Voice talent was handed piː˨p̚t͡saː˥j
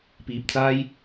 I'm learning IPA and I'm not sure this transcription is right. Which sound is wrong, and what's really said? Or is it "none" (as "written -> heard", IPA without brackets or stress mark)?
none